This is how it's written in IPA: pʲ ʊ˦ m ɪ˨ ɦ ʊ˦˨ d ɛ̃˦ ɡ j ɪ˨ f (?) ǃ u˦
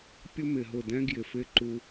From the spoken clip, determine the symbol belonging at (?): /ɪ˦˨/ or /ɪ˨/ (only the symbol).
ɪ˦˨